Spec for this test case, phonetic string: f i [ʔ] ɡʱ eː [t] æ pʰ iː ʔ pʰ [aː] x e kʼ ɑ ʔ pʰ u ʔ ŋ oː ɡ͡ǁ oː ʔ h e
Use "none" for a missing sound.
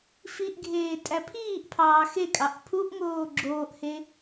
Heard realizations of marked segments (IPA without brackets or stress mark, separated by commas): ʔ, tʼ, ɑː